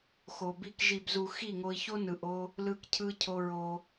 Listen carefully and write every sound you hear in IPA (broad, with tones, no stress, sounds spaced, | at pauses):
x o˨ b i˧ k ʒ i˨ b z u˨ x i˦˨ ŋ o˧ i̯ ç o˦ n ɯ˨ ʔ o˧ | l ɯ˧ k cʰ ɯ˧ cʰ o˧ ɹ o˧